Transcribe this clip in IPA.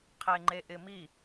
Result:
qʰ e ŋ͡ǃ e ʔ ɪ m i

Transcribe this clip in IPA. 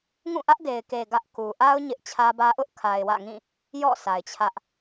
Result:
ŋ ũ˦˨ ʔ ä˦ ʔ d e˨ ɪ̯ k e˨ ɡ ä˦ ʔ k u˨ ʔ a˦ ʊ̯ ɲ ɪ˦ ʔ t͡ɕʰ ä˦ b ä˦ ʔ ʊ˦ ʔ kʰ a˨ ɪ̯ w ä̰˦˨ ŋ ĩ˦˨ | j ɔ̰˦˨ sʰ a˨ ɪ̯ t͡ɕʰ ä˦ ʔ

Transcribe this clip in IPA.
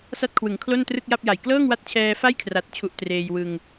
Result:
s a˥˩ t̚ kʰ w ɯ˩˦ ŋ kʰ l o˥˩ n t r ɯ˥˩ k̚ j a˥˩ p̚ j a˨˩ j k l ɤː˥˩ ŋ w a˦˥ t̚ t͡ɕʰ ɛː˧ f a˥˩ j kʰ r a˨˩ t̚ t͡ɕʰ u˨˩ ʔ t r eː˧ j w ɯ˧ ŋ

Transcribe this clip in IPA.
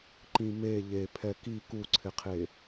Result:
ǃ ĩ m e ʎ e pʰ ɛ k i k u ǀʰ ɪ qʰ e

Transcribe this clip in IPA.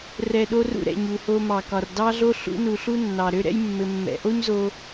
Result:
r ɛ˨ ɗ o˧ r ṵ˧ ɾ ɛ̰˨ ɲ u˨ h o˧ m ɑ˨ k ɒ˨ r d ɑ˦ ɮ o˦ ɬ ṵ˧ n u˨ ɬ u˦ nː ɑ˨ ɾ ø˦ ɾ ɛ̰˦ j mː ɘ˧ mː ɛ̰˧ ʔ o˦ ɲ z o˧

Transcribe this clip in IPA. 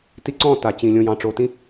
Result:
t i˧ ǀ ɔ̃˦˨ t a˨ t͡ɕ ĩ˨ lʲ õ˨ j ɑ̃˨ ʈ͡ʂ o˨ t ĩ˦

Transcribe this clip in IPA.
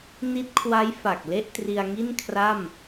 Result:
n i˦˥ t̚ kʰ w a˦˥ j f a˨˩ k̚ l e˥˩ ʔ t r i˧ a̯ ŋ i˥˩ n kʰ r a˥˩ m

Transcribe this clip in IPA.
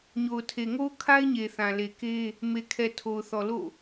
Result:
ɲ o˨ ʊ̯ tʰ e˨ ŋ o˦ ʊ̯ kʰ a˦ ɪ̯ ɲ e˨ θ ã˨ l e˨ k e˦ | m e˨ kʰ ɛ˨ tʰ o˨ ʊ̯ θ ɔ˨ l o̰˦˨

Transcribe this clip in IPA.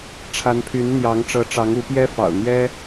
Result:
ʈ͡ʂʰ a˨˦ n pʰ y˨˦ n n̪ j ɑ˨˦ ŋ ʈ͡ʂ ɤ˨˦ ʈ͡ʂ ɑ˨˦ ŋ u˨˦ p j ɛ˦ f ɑ̰˨˩ ʊ̯ n̪ j ɛ˦

